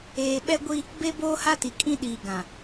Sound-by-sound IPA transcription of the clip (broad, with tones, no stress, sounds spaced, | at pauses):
eː˨ ɓ ɛ˦ ɡʷ i˦ | b e˦ b oː˦ h a˦ t i˨ kʼ ĩ˦ ɗ iː˨ ɡ ã˨